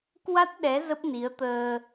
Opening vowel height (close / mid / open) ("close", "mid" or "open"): open